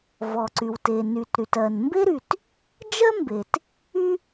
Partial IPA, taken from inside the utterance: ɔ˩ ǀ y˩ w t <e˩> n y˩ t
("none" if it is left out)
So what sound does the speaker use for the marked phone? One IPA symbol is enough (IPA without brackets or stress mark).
e˩